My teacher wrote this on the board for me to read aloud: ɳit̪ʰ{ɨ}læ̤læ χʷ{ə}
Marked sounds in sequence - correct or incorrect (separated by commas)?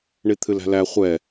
correct, incorrect